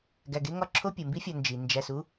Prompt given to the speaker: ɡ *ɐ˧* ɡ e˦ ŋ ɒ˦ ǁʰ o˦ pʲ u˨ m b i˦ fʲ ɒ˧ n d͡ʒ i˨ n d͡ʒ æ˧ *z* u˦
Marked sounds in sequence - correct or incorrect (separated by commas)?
incorrect, incorrect